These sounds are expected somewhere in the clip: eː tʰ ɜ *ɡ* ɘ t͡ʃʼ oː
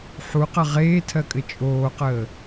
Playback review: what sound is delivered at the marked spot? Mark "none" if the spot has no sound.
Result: kʼ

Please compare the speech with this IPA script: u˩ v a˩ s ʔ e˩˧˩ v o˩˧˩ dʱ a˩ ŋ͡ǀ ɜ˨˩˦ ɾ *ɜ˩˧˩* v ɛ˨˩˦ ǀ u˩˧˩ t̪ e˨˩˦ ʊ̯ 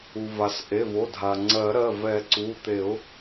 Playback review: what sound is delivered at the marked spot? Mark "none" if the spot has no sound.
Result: ɜ˩˧˩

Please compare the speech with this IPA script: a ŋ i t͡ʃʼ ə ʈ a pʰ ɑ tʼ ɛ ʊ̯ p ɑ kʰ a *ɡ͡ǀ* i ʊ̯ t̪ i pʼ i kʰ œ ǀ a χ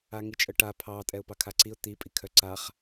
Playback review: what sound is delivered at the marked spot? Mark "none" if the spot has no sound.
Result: ǀ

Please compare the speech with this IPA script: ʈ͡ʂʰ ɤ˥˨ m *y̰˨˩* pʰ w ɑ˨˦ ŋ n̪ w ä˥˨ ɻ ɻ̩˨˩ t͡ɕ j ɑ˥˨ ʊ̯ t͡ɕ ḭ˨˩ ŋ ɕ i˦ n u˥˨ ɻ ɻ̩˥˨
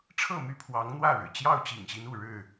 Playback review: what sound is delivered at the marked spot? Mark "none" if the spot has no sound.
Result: y˥˨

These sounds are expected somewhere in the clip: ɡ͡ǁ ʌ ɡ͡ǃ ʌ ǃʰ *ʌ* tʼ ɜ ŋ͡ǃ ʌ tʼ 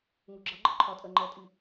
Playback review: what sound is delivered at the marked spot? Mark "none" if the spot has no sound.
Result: ɒ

